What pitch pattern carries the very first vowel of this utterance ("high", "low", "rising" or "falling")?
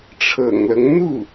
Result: low